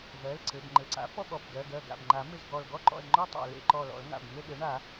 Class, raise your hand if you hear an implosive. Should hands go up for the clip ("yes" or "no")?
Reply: yes